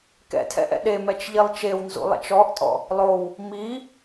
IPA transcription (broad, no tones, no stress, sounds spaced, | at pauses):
k ɛ̰ tʰ ɛ̰ ʔ ɛ̰ ɗ e m ɛ t͡ʃ ʎ i lˠ t͡ʃ e w n z ṵ lˠ ɛ̰ t͡ʃ ɔ ʔ tʼ ɔ̰ | lˠ o w | m i